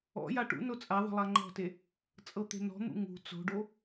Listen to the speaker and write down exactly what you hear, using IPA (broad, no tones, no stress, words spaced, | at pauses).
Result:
ɔ̰ja ʈṵno t͡sʼaðˤə̤ lˠaŋ͡ǃɔ̤te | t͡sʼɤt̪e̤nɔ̤n̪ṵ ŋṳ t͡so̤ɖo